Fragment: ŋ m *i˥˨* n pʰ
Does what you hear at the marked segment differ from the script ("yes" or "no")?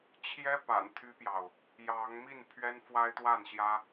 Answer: no